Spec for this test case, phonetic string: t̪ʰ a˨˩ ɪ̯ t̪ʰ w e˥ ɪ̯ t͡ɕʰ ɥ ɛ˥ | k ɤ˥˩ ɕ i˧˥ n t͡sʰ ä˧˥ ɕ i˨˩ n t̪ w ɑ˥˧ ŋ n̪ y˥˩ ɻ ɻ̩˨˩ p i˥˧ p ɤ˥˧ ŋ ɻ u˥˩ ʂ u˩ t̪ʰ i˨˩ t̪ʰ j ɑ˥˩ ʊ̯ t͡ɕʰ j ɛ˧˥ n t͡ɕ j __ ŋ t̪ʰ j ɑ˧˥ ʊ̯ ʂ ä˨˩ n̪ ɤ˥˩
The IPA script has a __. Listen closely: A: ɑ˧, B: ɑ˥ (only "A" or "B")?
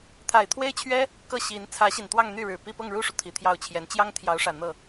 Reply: B